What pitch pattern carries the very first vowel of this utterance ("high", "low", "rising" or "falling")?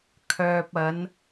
low